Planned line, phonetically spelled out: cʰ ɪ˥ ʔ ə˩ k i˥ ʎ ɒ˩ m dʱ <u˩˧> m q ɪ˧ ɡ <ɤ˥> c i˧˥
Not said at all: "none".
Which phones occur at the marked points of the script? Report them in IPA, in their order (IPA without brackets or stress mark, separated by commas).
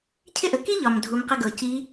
u˩˧, ɤ˩